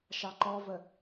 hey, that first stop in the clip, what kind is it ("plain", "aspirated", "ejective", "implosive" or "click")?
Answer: click